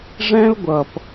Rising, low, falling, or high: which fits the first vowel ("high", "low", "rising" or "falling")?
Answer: high